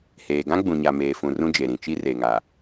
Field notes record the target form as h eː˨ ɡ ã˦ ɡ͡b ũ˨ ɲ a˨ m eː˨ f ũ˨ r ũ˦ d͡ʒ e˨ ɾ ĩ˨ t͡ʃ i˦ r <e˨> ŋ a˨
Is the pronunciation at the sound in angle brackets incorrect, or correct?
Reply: correct